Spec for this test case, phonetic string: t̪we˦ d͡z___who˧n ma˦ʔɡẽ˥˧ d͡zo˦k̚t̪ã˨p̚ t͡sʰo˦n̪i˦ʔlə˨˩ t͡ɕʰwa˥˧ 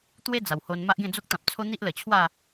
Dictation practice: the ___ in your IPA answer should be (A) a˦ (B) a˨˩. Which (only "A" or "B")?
B